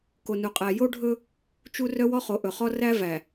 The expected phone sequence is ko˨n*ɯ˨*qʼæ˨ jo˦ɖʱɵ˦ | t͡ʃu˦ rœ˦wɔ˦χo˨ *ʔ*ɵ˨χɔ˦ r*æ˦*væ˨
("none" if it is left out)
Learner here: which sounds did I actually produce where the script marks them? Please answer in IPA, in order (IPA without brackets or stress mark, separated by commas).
u˨, ʔ, æ˦